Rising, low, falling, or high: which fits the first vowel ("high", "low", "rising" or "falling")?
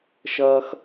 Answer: high